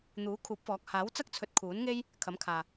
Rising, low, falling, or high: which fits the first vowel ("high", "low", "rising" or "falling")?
rising